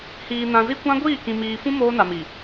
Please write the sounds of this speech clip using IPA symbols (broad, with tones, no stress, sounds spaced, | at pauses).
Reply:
h iː˨ n ã˨ z i˦ kʷ ã˦ ɡʷ iː˦˨ k ĩ˨ m iː˨ f ũ˦ m oː˦ n a˨ m i˨